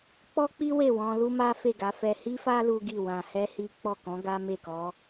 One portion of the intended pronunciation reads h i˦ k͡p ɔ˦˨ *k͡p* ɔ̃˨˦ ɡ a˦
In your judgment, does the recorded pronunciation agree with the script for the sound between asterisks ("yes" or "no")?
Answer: no